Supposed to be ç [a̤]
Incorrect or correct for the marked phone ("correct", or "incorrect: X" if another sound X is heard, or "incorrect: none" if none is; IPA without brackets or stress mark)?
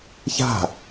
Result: correct